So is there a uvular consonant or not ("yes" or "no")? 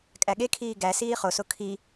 yes